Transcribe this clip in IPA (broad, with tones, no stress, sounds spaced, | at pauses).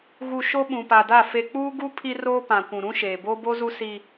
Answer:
ɣ u˨ ʃ o˦ ɓ ũ˨ p a˨ d a˦˨ f e˨ k͡p uː˦ ɡ u˦ pʰ i˦ r oː˦ p ã˨ kʷ ũ˨ ɾ ũ˦ ʃ eː˨ b oː˦ b o˦ z u˦ s i˦